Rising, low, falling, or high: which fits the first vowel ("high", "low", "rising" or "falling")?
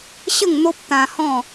falling